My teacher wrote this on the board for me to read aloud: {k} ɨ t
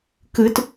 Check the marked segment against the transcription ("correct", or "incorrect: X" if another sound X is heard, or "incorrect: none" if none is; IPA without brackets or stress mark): correct